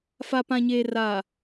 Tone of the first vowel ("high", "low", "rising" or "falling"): low